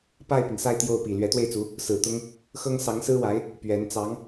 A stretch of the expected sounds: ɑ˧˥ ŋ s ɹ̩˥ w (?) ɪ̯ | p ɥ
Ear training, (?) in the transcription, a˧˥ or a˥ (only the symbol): a˧˥